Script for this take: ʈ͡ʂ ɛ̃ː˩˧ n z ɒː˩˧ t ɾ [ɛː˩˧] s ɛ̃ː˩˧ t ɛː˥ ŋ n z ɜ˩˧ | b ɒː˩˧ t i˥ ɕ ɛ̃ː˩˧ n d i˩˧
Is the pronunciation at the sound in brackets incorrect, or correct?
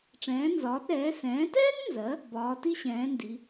correct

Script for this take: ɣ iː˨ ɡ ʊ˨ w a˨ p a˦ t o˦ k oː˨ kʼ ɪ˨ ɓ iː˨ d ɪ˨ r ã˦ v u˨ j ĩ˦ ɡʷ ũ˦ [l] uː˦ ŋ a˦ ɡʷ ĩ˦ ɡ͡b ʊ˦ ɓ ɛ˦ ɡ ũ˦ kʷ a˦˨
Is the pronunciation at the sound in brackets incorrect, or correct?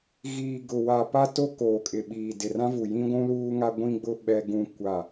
correct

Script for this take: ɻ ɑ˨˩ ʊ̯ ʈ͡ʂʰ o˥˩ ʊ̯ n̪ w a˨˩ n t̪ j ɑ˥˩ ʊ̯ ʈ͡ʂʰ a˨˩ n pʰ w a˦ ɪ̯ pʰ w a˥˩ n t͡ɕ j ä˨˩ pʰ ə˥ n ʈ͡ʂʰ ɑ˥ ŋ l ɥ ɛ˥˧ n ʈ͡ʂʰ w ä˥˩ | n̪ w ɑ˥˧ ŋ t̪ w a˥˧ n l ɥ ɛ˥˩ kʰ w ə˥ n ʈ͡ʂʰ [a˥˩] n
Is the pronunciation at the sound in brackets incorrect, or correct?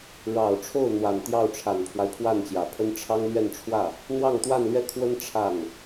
correct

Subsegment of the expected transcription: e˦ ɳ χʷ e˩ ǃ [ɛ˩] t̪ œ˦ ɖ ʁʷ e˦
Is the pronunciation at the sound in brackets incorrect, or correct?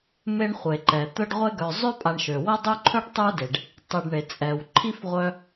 correct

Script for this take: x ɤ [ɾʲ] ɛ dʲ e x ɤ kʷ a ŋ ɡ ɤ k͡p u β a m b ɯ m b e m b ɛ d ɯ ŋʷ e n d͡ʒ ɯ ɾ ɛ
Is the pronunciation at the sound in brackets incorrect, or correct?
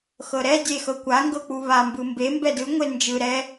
incorrect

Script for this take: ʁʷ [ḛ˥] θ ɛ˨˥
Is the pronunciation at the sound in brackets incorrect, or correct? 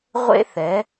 correct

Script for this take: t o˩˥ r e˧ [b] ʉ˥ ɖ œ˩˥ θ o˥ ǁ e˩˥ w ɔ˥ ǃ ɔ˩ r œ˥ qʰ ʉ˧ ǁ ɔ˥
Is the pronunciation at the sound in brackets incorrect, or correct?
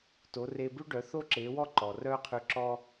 correct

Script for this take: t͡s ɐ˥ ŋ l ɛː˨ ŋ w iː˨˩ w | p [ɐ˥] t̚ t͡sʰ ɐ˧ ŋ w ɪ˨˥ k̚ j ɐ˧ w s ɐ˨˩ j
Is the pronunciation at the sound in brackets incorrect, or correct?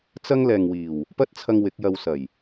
correct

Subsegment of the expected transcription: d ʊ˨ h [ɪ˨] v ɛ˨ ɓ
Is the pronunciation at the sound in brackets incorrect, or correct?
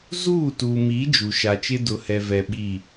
incorrect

